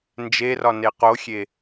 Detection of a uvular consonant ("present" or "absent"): present